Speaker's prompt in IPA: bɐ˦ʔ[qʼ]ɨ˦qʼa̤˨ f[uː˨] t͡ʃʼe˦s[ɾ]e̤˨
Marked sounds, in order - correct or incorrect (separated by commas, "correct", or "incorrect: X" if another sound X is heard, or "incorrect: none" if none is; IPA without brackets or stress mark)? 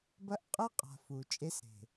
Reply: correct, incorrect: u˨, correct